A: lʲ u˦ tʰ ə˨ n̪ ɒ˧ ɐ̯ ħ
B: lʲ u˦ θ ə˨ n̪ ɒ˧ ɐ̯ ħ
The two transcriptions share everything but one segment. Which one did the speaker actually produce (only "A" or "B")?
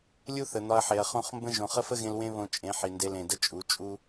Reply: B